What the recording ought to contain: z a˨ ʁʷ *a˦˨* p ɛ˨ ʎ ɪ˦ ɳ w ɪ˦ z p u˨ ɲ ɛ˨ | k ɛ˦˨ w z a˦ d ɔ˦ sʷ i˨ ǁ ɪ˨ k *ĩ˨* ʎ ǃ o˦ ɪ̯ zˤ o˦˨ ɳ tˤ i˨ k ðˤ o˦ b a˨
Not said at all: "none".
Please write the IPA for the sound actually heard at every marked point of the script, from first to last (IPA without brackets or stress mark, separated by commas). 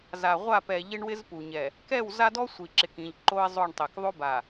a˦˨, ĩ˨